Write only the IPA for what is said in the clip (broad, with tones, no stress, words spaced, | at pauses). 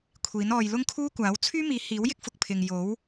kʷʰiː˨˥nɔː˧j lʊ˥ŋkʰuː˥kʷaː˨˥w t͡sʰyː˥miː˨˥hiː˨˥wjɪ˥k̚ fʊ˧k̚pʰɪ˧ŋ jo˨˥w